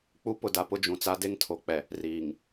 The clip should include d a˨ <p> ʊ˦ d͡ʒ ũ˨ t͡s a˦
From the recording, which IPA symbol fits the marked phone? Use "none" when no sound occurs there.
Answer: p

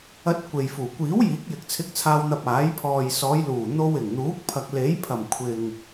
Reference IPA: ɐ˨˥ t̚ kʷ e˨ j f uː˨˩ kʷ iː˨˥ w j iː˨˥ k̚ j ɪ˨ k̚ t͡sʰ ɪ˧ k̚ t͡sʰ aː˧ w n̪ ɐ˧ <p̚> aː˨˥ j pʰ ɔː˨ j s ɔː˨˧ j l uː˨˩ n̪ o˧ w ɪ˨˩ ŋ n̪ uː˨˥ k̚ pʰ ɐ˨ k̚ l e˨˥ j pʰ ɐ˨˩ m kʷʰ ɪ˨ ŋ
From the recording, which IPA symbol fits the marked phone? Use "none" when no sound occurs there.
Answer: p̚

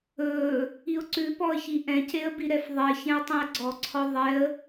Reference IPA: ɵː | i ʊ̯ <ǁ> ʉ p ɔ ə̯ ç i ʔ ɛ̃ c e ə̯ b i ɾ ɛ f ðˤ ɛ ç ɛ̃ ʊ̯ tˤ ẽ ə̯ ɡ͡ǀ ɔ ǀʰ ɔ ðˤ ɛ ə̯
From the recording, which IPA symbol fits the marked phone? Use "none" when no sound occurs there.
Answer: ǀ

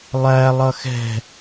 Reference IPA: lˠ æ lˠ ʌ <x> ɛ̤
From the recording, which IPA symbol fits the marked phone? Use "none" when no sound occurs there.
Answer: x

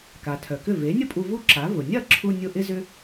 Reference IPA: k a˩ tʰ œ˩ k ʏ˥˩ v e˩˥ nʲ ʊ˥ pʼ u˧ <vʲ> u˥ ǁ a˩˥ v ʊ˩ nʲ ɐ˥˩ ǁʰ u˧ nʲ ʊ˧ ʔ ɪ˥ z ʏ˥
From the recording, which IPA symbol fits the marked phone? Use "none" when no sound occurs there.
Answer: v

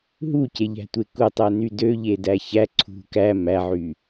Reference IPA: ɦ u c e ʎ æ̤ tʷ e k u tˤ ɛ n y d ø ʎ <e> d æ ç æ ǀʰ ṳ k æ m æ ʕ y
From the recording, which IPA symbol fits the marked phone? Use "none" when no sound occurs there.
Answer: e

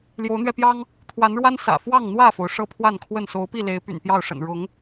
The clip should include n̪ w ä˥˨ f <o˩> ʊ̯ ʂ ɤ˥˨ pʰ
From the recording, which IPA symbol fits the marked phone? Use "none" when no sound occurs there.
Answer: o˩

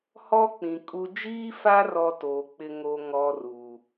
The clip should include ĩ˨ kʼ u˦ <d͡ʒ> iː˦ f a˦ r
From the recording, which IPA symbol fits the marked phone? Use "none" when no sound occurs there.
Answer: d͡ʒ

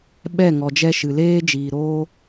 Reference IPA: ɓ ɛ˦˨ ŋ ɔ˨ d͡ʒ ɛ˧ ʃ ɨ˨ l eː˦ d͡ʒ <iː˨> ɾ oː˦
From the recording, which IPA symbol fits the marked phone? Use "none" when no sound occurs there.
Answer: iː˨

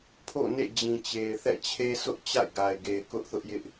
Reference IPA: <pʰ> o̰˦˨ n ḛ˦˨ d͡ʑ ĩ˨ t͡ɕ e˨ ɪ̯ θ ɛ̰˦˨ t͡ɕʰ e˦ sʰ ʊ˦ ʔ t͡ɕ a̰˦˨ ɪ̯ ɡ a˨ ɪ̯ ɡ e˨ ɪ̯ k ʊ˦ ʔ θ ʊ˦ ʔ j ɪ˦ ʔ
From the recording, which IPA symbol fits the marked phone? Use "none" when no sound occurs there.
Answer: pʰ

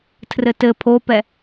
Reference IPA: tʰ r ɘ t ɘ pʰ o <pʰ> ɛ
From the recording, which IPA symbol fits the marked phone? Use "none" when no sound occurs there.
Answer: p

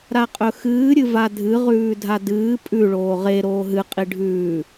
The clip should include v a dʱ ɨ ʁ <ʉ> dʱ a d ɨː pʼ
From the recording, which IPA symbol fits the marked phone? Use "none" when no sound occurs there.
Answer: ʉː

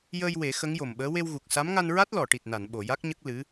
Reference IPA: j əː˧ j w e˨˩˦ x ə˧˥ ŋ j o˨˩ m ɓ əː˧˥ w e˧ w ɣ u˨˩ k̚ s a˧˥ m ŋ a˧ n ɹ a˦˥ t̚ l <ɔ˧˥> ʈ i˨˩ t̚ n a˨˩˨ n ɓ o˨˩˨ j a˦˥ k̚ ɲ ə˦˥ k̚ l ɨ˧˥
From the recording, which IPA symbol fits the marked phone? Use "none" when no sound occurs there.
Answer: ɔ˨˩˨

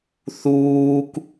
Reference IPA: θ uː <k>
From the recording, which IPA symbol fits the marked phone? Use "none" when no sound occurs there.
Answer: k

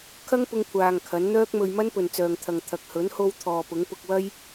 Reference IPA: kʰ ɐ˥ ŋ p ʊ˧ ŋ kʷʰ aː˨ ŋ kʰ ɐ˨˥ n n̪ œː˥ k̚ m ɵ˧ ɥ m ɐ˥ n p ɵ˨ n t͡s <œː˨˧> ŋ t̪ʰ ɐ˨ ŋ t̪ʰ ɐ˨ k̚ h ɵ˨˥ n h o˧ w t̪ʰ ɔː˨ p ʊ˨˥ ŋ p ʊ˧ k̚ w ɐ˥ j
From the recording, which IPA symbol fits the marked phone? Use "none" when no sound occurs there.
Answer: œː˨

